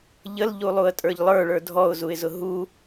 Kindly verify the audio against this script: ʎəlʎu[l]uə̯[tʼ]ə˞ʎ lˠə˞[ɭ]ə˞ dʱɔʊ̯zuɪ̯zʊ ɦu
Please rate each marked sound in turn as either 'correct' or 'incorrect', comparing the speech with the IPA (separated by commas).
incorrect, correct, correct